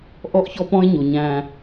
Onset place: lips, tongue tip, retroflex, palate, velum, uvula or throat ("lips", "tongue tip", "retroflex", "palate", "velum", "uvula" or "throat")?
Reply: throat